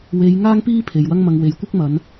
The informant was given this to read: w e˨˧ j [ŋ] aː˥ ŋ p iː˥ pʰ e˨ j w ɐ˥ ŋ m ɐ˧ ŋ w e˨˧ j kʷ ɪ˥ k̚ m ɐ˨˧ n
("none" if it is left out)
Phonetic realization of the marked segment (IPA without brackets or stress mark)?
ŋ